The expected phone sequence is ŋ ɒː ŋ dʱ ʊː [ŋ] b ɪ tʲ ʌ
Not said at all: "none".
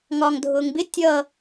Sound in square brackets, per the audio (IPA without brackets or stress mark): ŋ